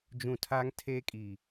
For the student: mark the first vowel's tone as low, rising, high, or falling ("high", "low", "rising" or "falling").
low